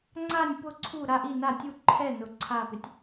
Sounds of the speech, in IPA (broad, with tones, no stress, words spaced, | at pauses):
ŋ͡ǀa˥˩nʲ pʊ˥˩ǀʰu˥˩ ɾa˥˩ʔi˥˩na˥˩tʲu˥˩ ǃʰɛ˥˩ nʊ˨˦ǀʰa˥˩pɪ˨˦tʲ